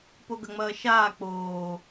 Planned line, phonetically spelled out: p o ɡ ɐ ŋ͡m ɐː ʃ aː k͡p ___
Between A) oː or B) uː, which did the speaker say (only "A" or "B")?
A